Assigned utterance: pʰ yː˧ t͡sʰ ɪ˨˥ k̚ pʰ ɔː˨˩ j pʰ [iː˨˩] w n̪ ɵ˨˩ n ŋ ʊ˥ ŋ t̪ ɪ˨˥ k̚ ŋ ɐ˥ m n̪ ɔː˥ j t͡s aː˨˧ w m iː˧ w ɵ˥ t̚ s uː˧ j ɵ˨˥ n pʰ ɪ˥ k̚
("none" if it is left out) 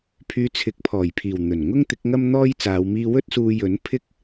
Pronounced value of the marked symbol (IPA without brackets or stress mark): iː˨˩